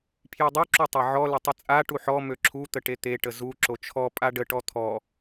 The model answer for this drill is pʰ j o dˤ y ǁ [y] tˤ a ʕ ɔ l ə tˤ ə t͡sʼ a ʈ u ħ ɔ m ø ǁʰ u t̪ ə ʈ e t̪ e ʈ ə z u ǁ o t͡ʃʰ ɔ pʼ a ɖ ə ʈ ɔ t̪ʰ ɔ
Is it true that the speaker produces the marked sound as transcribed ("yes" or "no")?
no